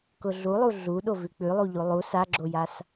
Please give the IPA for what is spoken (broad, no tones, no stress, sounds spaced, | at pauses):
k ʊ ɮ u lˠ u ɮ u ɗ o v ʉ k͡p ʉ lˠ u ʎ u lˠ u s a ɡ͡ǁ o j a s